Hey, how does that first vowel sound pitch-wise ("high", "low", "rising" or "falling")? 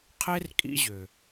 high